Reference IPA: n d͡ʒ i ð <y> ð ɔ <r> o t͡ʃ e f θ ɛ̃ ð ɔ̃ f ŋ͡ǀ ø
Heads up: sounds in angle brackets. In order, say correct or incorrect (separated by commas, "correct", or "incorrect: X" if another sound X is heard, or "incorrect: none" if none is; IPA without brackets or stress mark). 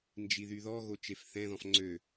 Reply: correct, incorrect: ɣ